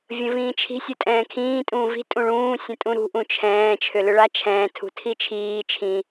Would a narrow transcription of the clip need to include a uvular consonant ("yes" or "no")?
no